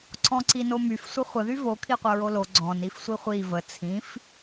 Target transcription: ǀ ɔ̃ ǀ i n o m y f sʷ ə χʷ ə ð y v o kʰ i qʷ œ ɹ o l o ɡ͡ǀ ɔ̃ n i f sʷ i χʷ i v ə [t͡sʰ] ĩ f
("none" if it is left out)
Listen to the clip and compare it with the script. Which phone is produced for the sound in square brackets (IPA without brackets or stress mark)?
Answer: t͡sʰ